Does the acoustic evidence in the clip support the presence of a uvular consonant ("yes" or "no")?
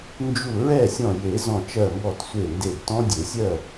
no